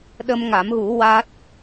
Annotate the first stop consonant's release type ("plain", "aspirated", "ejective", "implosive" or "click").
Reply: implosive